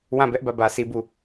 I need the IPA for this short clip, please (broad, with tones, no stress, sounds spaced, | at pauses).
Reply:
w ã˦˨ b ɛ˦ ʔ b ä˦˨ b ä˦ s i˦ b u˦